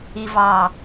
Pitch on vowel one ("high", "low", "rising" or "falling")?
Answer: low